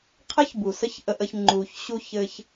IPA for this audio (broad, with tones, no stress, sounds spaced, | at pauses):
qʰ ɘ˦ ç b u˨ s ə˦ ç ʔ ə˧ ʔ ə˧ ç ŋ͡ǃ u˨ ç ɕ u˧ ç ɘ˧ ç